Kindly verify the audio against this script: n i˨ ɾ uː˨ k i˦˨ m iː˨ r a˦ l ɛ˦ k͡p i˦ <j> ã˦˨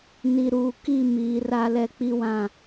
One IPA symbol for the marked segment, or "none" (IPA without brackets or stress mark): w